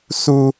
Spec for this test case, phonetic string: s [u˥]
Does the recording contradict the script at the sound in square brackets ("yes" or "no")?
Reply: no